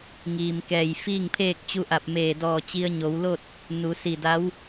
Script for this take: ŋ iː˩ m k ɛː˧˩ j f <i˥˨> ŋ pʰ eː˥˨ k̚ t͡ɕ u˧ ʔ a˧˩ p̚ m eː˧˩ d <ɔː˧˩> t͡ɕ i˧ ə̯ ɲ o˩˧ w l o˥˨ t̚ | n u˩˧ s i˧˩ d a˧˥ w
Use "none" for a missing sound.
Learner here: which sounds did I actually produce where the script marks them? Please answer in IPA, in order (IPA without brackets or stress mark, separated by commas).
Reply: iː˥˨, ɔː˧˩